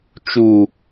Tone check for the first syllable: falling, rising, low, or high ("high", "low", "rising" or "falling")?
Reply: low